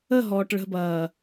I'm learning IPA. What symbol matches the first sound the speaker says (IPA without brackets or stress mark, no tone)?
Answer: ə